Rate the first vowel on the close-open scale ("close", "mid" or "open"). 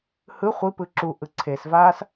close